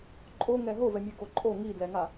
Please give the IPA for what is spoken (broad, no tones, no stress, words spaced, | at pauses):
ǃʼoŋɛ ɦovɛmʲɛɡo ǃʼo ŋidlɛŋa